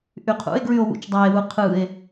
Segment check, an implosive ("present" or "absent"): absent